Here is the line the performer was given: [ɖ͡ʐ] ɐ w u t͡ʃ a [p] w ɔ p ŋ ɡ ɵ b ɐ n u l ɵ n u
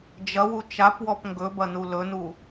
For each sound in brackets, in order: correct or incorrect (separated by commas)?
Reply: incorrect, correct